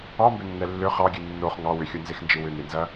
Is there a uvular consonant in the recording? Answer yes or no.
yes